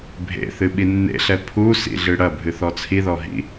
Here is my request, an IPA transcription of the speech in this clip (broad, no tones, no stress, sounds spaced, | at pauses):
bʱ ḛ θ ɨ ɓ i nː ḛ ɬ ɛ pʰ u s ḭ ɮ ɨ ɽ ɐ bʱ ɨ θ ɔ t͡sʰ i ð ɔ ɦ ḭ